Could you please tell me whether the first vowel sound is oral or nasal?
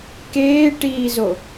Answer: oral